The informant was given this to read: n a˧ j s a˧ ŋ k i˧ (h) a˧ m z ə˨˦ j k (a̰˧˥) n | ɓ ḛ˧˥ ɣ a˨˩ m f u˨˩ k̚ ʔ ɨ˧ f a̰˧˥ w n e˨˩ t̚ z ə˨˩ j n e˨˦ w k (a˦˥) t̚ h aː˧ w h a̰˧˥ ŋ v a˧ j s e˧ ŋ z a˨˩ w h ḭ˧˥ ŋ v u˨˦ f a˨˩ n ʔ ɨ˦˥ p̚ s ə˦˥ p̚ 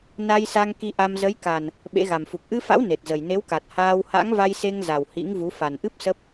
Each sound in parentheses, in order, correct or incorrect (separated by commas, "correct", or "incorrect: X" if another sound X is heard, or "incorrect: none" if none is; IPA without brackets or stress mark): incorrect: ʔ, incorrect: a˨˩, incorrect: a˨˩